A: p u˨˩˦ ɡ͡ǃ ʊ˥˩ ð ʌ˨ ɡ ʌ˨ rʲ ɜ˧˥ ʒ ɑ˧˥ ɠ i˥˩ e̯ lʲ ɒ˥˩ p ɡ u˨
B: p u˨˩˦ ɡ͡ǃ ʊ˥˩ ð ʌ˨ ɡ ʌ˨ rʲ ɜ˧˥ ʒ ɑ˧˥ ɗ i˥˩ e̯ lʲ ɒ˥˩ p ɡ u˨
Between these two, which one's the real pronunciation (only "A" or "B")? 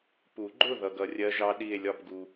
B